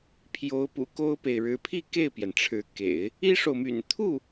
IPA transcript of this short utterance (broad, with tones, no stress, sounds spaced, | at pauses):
pʰ j o˧˥ ʊ̯ p ṵ˨˩ k o˥ ʊ̯ p e˨ ɪ̯ ɻ ɻ̩˧˥ pʰ i˥˧ k e˥˩ ɪ̯ p j ɛ˩ n ʈ͡ʂʰ ɻ̩˧˥ k ḛ˨˩˦ ɪ̯ | i˥ ʂ o˨ ʊ̯ m y̰˨˩ n t̪ʰ u˥˩